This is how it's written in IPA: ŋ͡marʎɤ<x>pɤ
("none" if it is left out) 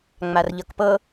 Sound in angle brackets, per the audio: k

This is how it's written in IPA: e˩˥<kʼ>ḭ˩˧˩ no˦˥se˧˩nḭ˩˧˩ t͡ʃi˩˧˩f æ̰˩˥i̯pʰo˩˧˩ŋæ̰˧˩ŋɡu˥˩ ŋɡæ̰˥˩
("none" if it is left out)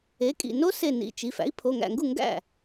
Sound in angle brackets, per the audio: kʼ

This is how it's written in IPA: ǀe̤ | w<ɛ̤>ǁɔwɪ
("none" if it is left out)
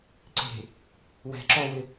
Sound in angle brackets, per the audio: ɛ̤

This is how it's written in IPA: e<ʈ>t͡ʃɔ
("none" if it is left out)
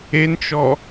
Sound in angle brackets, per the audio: n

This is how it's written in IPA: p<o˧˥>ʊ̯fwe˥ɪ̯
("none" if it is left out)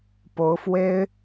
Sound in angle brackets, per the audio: o˧˥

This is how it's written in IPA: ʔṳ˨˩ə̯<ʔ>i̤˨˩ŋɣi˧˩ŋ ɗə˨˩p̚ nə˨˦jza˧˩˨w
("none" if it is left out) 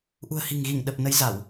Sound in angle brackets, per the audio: h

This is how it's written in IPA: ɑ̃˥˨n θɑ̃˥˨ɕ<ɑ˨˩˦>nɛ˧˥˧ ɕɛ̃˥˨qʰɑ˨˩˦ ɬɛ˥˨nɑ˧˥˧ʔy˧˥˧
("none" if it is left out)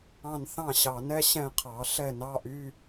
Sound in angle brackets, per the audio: ɑ˨˩˦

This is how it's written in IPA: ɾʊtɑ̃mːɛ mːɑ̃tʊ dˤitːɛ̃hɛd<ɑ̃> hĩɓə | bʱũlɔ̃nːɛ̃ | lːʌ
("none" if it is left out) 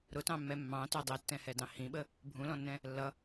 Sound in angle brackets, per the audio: ɑ̃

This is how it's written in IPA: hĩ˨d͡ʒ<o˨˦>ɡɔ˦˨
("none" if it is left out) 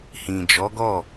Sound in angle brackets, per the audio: ɔ˨˦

